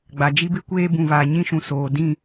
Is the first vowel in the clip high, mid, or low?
low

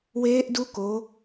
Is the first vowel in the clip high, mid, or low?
mid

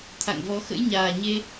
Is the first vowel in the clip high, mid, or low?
low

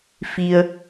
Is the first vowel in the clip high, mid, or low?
high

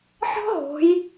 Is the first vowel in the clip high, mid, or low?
mid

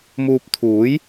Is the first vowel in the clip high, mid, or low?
high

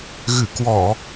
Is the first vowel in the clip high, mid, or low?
high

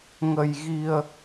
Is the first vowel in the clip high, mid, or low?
mid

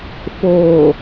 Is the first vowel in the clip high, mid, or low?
mid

